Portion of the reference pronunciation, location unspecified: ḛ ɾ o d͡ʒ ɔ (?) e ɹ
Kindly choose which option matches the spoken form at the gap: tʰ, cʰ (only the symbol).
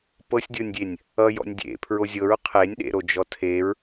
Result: tʰ